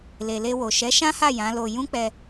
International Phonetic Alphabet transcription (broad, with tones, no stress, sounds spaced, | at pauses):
l e˨ l e˧ w o˨ ʃ ɛ˨˦ ʃ ã˦ h a˦˨ j ã˨˦ l o˧ j ũ˦ k͡p ɛ˧